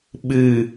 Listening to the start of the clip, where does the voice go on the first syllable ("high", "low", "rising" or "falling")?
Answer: low